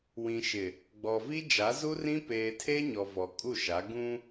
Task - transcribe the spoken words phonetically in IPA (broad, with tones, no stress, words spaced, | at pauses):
wĩ˨ʃɪ˨ | ɡ͡bɔ˨vi˦ d͡ʒa˨˦zu˦rĩ˦ peː˨tʰe˦ ɲɔ˨ vɔ˨kʼu˦˨ʃa˨˦ ɡũ˦